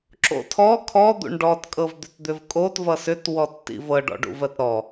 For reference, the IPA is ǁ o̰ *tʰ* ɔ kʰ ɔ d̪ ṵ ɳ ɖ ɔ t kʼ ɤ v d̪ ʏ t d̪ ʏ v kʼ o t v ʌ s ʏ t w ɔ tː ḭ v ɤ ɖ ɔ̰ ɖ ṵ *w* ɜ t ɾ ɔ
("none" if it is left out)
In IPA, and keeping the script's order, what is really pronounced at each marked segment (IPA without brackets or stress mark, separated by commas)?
tʰ, v